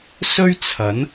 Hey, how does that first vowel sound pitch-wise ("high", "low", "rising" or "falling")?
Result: high